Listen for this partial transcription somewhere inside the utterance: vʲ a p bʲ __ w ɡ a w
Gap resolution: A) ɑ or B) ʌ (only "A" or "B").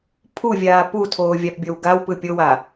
B